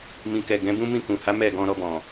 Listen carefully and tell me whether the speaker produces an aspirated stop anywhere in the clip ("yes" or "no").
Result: no